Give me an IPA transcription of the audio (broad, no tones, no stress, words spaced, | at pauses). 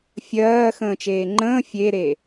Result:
fʲɜː xə̃ːt͡ʃeːŋ͡ǃə̃ː fʲeɾe